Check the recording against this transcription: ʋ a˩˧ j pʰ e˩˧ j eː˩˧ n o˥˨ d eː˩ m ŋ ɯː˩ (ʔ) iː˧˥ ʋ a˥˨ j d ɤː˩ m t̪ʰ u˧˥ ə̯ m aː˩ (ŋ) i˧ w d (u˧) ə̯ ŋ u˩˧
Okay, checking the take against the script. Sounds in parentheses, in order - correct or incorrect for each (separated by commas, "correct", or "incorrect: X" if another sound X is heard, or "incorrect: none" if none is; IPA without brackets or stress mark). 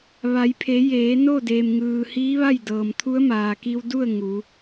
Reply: incorrect: h, incorrect: k, incorrect: u˥˨